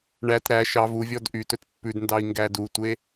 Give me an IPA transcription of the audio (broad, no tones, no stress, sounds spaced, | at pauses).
ɳ æ t ɾ æ ʃ ɑ v u vʲ ɔ d ʔ y t ɵ t pː ʉ d n d ɑ i̯ ŋ ɡ æ d u tʷ e